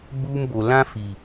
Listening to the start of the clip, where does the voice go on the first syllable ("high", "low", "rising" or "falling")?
high